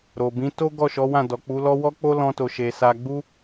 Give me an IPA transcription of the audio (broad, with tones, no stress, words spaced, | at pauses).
ɾo˨bĩ˨˦ to˦ ɡɔ˦˨ʃɔ˨˦ wã˦˨dɔ˨k͡pu˨˦lɔ˦ wɔ˦k͡po˦ lɔ̃˧to˨ ʃe˨ sa˧ɡ͡bu˦